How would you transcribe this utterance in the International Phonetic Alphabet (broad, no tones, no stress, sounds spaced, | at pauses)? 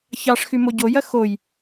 ç ɑ ʂ x y m o ɟ o j ɐ x o j